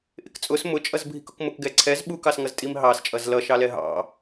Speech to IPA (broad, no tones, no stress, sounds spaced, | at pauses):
ʔ ɪ k t͡sʼ ʊ s m ʊ t͡ʃʼ ʌ z bʱ i k ʊ k m ʊ k ɡ ɛ ǀʰ ɛ z ɓ u k ɑ s ŋ ʌ z tʼ i m ɦ ɑ s t͡ʃʼ ʌ z l ʌ ʃ ɑ l ɛ ɦ ɑ̰